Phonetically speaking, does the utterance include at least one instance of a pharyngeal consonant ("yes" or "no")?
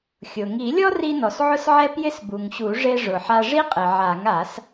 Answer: yes